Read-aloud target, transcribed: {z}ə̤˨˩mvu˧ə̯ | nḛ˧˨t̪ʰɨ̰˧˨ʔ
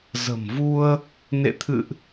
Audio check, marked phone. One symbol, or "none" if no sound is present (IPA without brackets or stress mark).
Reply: z